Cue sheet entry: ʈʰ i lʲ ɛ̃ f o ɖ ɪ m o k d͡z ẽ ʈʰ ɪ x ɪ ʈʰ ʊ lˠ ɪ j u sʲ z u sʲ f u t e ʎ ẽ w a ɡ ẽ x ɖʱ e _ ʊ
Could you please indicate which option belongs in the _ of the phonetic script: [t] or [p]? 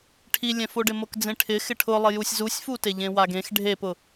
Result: p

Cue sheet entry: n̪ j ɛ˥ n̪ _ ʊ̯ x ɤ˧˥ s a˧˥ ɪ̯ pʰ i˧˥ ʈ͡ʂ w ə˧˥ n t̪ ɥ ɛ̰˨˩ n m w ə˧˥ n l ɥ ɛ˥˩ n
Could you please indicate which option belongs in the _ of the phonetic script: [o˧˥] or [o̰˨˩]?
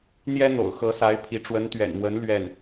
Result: o̰˨˩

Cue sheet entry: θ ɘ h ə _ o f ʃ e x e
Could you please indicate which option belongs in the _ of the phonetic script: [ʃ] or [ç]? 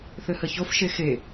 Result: ç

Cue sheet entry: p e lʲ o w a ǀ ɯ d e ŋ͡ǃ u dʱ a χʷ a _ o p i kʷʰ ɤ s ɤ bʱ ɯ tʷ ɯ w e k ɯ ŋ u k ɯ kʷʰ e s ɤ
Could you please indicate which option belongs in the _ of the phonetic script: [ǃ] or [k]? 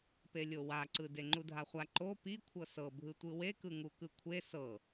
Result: ǃ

